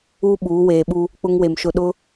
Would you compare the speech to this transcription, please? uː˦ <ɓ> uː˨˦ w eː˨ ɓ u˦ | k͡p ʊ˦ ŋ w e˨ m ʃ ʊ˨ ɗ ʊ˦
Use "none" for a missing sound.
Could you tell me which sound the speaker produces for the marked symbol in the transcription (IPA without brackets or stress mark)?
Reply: ɓ